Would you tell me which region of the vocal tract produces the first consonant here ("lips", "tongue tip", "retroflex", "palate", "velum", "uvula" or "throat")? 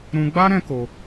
tongue tip